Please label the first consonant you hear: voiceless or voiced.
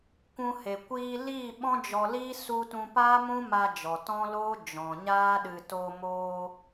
voiceless